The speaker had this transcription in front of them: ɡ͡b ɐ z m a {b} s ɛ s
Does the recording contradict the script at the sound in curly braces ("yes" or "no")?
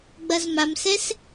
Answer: yes